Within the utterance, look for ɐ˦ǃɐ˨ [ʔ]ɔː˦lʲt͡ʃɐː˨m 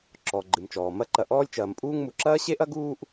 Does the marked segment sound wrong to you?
no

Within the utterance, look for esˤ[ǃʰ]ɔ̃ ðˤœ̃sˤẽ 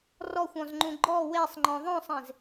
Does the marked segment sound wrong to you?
yes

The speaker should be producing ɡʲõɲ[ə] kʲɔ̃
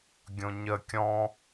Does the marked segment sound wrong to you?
no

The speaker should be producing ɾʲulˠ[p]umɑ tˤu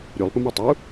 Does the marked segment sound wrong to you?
no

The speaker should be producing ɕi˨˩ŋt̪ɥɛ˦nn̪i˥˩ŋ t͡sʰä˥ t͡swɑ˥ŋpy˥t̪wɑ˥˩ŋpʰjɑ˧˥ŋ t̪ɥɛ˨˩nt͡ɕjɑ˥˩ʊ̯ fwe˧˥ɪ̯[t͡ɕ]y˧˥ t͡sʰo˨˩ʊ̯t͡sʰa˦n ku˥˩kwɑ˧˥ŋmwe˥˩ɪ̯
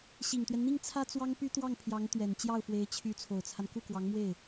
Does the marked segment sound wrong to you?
yes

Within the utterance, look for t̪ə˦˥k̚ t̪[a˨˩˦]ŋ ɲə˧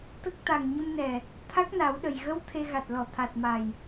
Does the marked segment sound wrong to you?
yes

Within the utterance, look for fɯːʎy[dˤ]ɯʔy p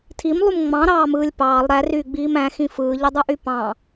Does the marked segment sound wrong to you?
no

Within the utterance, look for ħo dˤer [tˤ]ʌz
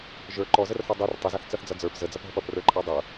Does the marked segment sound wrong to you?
no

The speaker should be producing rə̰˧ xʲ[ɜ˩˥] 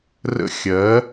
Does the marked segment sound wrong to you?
no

